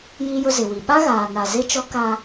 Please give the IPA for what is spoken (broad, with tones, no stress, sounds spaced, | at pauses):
j i˦ j ʊ˦ z ɪ˨ w i˨ ɓ a˦ ɣ aː˨ n a˨ z e˦ t͡ʃ ɔ˦ k a˦